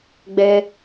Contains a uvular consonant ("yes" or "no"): no